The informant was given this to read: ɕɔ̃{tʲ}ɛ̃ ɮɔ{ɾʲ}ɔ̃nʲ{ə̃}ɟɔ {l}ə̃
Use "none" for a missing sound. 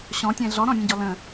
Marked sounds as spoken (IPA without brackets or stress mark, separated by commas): tʲ, ɾ, ə̃, l